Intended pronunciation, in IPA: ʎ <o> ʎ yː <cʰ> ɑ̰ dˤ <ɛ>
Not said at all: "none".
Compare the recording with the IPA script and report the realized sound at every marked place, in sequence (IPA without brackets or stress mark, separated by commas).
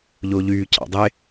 o, cʰ, e